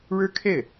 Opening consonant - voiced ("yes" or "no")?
yes